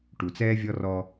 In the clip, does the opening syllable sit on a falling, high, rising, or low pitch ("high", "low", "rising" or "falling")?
low